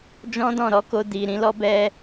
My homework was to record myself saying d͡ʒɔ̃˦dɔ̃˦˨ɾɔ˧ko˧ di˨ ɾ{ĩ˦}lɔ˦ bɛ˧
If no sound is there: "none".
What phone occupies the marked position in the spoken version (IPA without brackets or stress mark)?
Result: ĩ˨˦